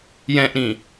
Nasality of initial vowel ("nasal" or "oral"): nasal